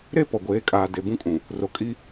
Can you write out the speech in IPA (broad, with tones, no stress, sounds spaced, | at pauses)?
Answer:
ɾ e˦ p ɔ˨ ɡʷ eː˨˦ kʼ aː˨ d e˨ b ũ˦ kʼ ũ˨ | r o˨ kʼ i˦